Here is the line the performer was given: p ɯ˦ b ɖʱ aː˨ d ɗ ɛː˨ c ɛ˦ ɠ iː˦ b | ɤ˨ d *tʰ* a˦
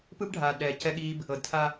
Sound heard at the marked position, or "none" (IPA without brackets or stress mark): tʰ